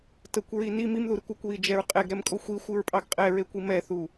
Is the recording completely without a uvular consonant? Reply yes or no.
no